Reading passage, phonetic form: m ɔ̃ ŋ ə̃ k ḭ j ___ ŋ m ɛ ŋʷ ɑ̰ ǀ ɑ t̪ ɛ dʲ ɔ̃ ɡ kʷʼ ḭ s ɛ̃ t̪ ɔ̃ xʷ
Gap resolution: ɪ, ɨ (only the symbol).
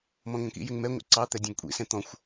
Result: ɪ